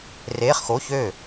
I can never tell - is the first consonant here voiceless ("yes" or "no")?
no